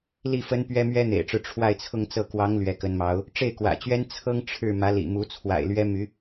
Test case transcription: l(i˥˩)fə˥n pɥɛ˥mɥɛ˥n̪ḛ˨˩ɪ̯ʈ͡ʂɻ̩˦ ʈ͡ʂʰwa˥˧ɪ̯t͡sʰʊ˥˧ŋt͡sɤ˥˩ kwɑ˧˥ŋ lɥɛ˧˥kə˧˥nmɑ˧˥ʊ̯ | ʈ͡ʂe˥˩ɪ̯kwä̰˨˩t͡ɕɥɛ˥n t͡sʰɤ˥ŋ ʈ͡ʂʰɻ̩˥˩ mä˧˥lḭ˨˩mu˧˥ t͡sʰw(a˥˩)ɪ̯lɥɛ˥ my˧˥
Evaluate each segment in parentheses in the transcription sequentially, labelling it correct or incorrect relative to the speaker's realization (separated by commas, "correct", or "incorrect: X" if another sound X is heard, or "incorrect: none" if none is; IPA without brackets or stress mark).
correct, incorrect: a̰˨˩